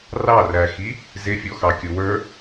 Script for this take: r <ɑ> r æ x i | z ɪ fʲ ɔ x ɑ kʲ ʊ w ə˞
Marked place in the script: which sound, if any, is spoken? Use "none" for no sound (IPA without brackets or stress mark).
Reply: ɑ